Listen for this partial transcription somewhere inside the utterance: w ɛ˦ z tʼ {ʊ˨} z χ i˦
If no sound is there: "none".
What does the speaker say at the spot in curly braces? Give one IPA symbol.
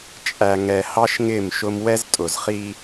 ʊ˨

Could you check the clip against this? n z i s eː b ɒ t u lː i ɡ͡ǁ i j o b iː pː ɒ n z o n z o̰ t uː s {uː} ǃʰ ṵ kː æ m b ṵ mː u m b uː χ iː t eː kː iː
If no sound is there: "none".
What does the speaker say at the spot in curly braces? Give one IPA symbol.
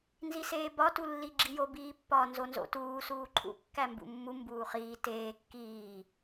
uː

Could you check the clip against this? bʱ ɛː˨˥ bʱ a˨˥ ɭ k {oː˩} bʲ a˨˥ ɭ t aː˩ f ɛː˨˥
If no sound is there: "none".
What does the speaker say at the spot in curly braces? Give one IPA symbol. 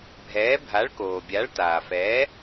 oː˩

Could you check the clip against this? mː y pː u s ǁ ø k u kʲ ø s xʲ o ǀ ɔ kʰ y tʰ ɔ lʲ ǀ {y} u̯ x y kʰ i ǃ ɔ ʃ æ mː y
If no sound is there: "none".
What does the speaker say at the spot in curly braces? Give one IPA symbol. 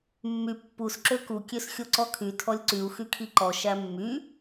y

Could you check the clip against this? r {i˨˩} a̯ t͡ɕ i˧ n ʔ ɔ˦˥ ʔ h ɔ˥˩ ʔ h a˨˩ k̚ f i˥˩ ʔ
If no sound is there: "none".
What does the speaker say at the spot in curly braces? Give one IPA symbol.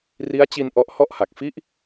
i˦˥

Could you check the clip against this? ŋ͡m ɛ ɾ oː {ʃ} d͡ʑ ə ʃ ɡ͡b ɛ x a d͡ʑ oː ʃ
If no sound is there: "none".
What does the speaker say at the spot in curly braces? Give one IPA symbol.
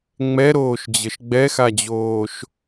ʃ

